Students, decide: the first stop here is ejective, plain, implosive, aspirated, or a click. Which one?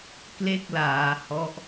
plain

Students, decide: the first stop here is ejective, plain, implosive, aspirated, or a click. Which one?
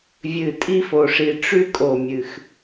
ejective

